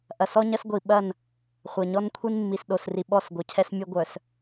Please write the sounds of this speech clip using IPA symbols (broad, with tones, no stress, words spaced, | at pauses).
ʔɐ˨sɔ˦ɲɐ˦sɡʷi˨ ɓɐ˦˨n | χʷɐ˨ɲɔ˦n kʷʰi˦nmːi˨s ɗo˨sri˨ ɓɔ˦˨sɡʷɐ˨cʰɛ˦smʲʊ˦ ɡʷœ˨s